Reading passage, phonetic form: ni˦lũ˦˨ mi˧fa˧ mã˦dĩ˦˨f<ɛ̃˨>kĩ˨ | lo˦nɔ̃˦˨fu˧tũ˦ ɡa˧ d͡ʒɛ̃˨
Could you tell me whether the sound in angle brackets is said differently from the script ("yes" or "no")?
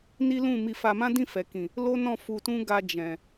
yes